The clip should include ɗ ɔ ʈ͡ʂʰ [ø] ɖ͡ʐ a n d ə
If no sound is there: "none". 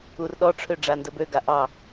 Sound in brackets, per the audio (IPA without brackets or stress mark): ø